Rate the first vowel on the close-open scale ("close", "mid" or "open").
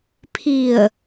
close